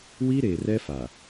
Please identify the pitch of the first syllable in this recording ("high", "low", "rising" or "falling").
high